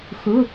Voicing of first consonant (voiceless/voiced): voiceless